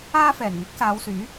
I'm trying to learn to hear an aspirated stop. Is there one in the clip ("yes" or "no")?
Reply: no